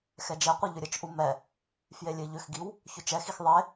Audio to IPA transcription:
x ɛ d͡ʒ ɛ qʷ i ʎ ʏ ɾʲ ə t͡ʃ ʔ u m ɛ | f j e lʲ e ʎ ʏ x ɡ i w | ç ʏ t͡ʃ ɛ x i x ðˤ e

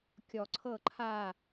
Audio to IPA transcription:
kʲ ɔ˨˩˦ ǀʰ ɤ˥˩ ǃʰ a˥˩

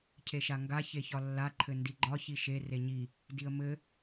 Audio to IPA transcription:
cʰ e ʃ a ŋ ɡ a ç e ç ɒ lː a ǃʰ ɘ n d i ɡ͡ǃ ɒ ç i ʃ e r e ɲ i | d i ə̯ m ɘ

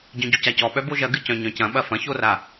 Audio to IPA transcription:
ɟ œ̃ ɟ u c a c ɔ ɓ œ b o ʒ ɐ ɡ ɨ c œ̃ ɲ œ̃ c ɐ̃ ɓ ɐ f ɐ̃ ç o r a

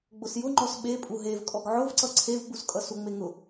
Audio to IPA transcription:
ɡ͡b ʊ s j ʊ ŋ͡ǃ ɔ s ɓ e pʼ u ɦ e v kʼ ɔ ɡ ʕ ʊ v ǀ ʌ ǀʰ e v ɡ͡b u s kʼ ʌ s u ŋ͡m e ŋ ʊ

